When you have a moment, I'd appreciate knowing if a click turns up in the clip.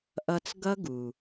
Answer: no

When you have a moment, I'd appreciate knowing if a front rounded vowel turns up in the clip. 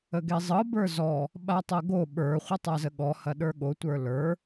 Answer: no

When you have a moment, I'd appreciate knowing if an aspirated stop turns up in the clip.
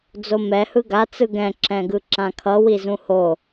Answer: yes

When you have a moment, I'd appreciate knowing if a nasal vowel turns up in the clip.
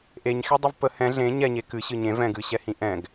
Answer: yes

